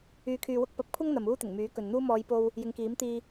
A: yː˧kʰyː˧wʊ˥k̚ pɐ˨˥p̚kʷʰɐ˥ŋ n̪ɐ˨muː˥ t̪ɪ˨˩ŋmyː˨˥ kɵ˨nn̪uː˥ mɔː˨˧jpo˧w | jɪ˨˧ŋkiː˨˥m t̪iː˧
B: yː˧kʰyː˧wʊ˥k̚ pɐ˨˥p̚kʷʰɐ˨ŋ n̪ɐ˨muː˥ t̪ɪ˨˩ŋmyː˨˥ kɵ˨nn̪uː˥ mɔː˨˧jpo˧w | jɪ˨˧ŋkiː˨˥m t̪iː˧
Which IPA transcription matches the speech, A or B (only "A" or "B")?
A